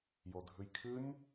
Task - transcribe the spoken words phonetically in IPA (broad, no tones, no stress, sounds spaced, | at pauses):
j o dʱ ʉ j kʰ ɨ nʲ